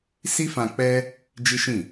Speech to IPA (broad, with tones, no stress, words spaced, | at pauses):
si˦fã˧k͡pɛ˦ | d͡ʒi˦ʃĩ˦˨